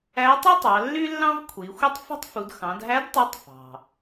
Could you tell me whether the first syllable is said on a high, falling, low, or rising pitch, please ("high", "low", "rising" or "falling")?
rising